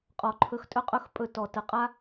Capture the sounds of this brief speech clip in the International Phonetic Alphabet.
qʼ ɔ˨ ǃʰ ɵ˧ x tʼ ɵ˦ qʼ ɵ˦ x pʼ ɵ˧ t ɔ˨ t ə˨ qʼ a˦

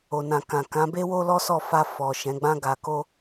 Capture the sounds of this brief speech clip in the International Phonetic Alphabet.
o˨ n ã˨ k ã˨ k ã˨˦ b e˦ w o˦ l ɔ˦ s ɔ˦˨ f a˧ f ɔ˨ ʃ ɛ̃˨˦ ɡ͡b ã˦ ɡ a˧ k o˦

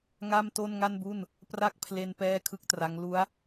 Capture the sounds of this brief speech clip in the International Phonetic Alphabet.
ŋ a˥˩ m t o˥˩ n ŋ a˥˩ n b u˥˩ n | p r a˥˩ k̚ pʰ l e˧ n p ɛː˥˩ kʰ ɯ˥˩ k̚ t r a˦˥ ŋ l u˦˥ a̯

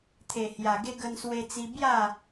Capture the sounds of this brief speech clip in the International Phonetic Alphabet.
t̪ʰ e˨˩ h j a˨˩ ɡ e˧ ɡ ə˧ n s w e˧ t͡s i˧ b j a˥˧

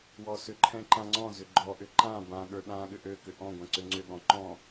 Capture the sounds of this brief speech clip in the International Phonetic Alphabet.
w ɔ s ʏ ǃʰ ɛ̃ ǃ ã ŋ͡ǀ ɔ̃ z ʏ ɡ͡ǃ ɔ ʔ ʏ ǃ ã b ã ɠ ə˞ ɗ ã ɠ ʏ ʔ ø k ʏ ʔ ɔ̃ ɡʷ ɛ̃ ǀ ʏ ŋ͡ǀ ʏ ɠ ɔ̃ ǃ ɔ̃

